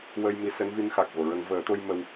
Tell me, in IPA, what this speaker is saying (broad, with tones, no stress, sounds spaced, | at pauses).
w ə˧ j m i˧˥ s ɛ˧˥ n v i˧˥ n x a˨˩ k̚ v o˨˩˨ ɹ ə˨˩˦ ŋ v əː˨˩˦ t̪ o˧ j m ə˧ w